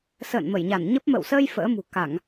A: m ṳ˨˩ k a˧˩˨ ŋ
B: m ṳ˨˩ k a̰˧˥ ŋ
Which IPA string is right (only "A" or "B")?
A